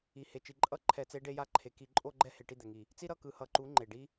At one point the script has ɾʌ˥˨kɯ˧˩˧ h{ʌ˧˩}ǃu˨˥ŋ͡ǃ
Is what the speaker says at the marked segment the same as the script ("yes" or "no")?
yes